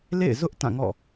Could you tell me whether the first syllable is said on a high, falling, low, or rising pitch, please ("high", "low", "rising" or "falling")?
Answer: falling